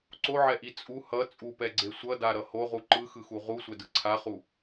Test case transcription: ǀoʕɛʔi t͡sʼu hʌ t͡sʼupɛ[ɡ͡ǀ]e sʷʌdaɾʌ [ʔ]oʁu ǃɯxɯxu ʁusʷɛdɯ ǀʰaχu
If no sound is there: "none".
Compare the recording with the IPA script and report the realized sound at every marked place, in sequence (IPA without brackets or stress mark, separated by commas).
ɡ͡ǀ, h